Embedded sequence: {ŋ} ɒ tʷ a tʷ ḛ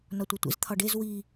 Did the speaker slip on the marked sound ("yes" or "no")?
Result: yes